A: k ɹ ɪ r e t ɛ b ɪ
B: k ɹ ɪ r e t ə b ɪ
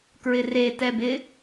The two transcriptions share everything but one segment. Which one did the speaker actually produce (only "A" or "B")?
A